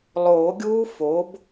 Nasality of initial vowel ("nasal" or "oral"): oral